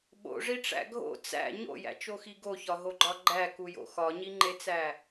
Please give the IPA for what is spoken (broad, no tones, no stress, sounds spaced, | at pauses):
ɓ o̰ ʐ i ʈ͡ʂ æ̰ ɡʱ o̰ t͡s æ̰ ɲ o̰ j æ̰ t͡ʃ o x i ɡ o ç ɒ ɦ o ɡ͡ǃ ɒ ɡ͡ǃ æ k u j o̰ x ɒ ɲ i ŋ͡ǃ e t͡s æ